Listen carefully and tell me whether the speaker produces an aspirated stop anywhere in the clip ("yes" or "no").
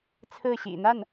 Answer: yes